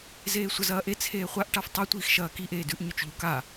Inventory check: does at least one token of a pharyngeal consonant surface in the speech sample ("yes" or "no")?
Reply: no